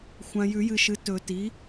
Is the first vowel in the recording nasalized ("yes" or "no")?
yes